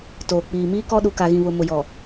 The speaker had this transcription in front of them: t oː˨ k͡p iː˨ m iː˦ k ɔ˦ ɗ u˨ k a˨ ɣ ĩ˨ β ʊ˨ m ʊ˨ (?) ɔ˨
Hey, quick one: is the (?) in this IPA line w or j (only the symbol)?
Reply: j